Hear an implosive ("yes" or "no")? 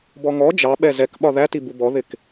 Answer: yes